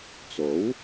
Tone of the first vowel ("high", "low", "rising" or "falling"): rising